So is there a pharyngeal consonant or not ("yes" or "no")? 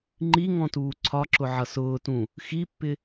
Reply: yes